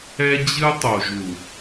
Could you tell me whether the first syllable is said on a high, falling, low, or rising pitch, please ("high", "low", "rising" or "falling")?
high